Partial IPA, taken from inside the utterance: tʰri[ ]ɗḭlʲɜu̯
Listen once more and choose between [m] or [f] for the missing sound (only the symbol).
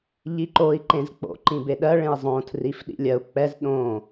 f